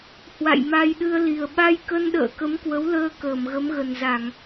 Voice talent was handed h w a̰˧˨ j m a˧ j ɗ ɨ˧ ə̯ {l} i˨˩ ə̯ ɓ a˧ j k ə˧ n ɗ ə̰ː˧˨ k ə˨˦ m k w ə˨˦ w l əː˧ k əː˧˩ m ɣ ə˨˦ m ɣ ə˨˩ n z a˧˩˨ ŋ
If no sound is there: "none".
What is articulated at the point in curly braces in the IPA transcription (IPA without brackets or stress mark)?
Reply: l